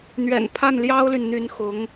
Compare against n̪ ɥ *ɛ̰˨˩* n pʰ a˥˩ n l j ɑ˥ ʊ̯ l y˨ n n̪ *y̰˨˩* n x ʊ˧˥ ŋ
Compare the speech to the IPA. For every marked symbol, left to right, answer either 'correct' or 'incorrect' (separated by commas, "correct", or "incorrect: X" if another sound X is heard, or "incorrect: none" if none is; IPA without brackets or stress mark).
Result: correct, incorrect: y˧˥